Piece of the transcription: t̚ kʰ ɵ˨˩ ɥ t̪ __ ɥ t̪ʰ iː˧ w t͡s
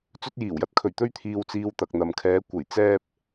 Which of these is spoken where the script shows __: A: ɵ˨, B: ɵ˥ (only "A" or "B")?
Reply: B